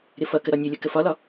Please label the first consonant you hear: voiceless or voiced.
voiced